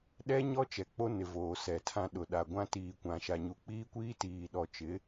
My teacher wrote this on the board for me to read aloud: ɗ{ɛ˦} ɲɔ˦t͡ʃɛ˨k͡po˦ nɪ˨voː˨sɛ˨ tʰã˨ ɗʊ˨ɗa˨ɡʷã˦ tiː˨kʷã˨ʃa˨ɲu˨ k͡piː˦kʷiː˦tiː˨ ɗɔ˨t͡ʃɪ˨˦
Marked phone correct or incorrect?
correct